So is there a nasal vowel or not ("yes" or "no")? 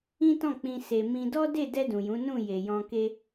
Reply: yes